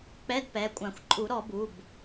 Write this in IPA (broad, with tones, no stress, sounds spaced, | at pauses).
k͡p ɛ˧˥˧ d p ɛ˩˧˩ kʷʼ ã˨˩˦ xʷ ǃʼ u˨˩˦ ɾ ɔ˨˩˦ b u˩˧˩ b